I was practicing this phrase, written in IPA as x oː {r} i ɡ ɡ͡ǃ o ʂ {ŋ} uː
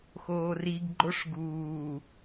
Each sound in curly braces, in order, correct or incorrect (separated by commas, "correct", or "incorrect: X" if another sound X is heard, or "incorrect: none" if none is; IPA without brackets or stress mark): correct, incorrect: ɡ